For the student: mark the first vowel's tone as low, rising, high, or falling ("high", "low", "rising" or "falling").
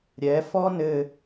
rising